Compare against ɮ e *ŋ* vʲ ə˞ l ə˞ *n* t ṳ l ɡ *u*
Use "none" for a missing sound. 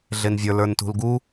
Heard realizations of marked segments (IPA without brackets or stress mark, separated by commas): n, n, u